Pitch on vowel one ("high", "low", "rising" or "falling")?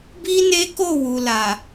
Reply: high